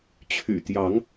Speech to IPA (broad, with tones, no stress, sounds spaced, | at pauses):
t͡ɕʰ y̰˨˩ t̪ j ɑ˨˦ ŋ